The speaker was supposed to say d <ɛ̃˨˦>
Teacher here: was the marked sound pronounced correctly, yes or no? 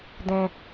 no